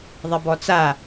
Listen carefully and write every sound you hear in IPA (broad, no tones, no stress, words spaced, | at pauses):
ðˤebɔt͡sa